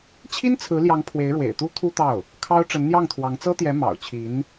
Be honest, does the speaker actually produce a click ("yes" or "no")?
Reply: no